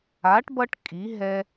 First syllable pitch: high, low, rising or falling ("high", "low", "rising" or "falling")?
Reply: rising